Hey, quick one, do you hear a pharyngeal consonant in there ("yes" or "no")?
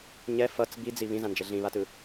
no